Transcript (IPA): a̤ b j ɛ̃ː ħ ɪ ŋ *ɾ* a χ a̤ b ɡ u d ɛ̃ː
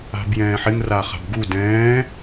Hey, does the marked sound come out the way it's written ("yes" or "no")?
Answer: no